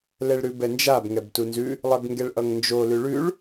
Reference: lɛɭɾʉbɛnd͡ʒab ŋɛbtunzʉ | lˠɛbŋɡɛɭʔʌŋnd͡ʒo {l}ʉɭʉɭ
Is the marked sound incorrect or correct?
correct